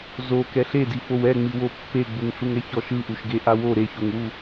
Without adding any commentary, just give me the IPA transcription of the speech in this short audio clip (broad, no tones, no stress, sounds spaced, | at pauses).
z o k ɛ ɬ e d i f o w ɛ ŋ͡m i w o pː e ɡ͡b u ŋ ɬ u ŋ ɛ ç ɔ ʃ ɯ ʔ u ʃ ɡ e ʔ a w o ɾ e ç o ŋ w u